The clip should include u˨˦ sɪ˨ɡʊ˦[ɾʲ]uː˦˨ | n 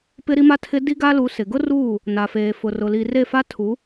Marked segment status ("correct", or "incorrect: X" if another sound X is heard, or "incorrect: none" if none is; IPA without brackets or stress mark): incorrect: r